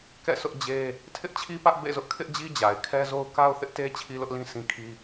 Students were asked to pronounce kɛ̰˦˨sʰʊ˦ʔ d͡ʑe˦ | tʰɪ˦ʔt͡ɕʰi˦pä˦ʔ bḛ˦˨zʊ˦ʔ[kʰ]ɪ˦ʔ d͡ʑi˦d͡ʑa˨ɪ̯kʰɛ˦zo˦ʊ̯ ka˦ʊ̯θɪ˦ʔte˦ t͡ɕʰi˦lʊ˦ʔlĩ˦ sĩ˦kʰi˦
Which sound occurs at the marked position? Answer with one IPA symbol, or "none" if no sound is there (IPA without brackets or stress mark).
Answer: kʰ